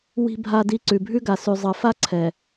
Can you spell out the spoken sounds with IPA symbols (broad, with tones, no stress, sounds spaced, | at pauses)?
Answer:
w i̤˦ bʱ a˦ d i˦ ǀ ʉ˨ bʱ ʉ˦ ɡ a˨ s ʉ˨ zˤ ɤ˨ f a˦ ǀʰ ɛ˨